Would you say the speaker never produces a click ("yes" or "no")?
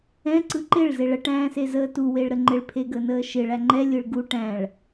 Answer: no